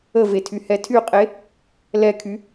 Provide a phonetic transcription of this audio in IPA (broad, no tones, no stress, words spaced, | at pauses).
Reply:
əvetʰyhɛ tʰyqʼe | lɛkʰy